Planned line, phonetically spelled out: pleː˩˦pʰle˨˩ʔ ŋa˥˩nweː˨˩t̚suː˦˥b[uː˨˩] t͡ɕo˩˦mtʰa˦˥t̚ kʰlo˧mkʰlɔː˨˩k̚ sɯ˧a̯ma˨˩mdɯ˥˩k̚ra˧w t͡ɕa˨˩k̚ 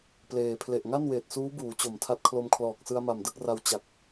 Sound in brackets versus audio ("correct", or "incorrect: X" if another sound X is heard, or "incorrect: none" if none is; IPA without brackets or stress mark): incorrect: uː˩˦